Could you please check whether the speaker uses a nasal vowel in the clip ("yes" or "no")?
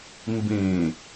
yes